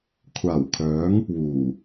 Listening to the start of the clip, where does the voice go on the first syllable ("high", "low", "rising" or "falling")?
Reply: low